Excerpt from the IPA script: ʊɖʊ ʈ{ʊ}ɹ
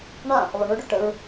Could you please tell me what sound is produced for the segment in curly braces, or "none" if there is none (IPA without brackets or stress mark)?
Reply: ə